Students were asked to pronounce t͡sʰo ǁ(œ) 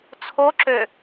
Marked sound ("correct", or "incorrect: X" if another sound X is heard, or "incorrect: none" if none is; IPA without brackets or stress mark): incorrect: ø